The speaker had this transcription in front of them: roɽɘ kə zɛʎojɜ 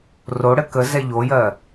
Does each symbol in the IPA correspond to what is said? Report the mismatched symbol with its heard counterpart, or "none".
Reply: none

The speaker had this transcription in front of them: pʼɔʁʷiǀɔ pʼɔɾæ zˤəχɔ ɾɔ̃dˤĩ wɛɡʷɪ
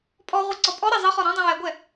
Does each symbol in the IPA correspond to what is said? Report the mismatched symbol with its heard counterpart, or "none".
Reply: ɪ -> ɛ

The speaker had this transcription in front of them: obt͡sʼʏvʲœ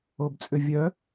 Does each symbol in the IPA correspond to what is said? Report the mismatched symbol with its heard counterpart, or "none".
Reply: none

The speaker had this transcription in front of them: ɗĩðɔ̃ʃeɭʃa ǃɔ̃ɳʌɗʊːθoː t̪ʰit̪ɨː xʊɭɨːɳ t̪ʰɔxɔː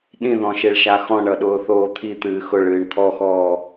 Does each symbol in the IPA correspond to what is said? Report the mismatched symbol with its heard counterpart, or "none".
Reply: ǃ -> x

